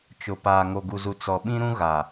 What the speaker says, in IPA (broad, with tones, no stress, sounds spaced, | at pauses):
t͡ʃ ʊ˨ p aː˨ ŋ o˨ ɡ u˨ z u˨ t͡s ɔ˨ ɓ ĩ˦ ɾ ũ˦ ɣ a˨